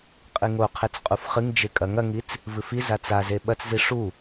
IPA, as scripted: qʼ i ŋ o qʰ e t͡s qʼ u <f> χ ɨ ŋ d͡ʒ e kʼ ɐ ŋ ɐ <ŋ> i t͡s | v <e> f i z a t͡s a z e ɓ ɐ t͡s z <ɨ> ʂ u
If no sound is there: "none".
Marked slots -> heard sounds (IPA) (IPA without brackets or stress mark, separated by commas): f, ŋ, ɨ, i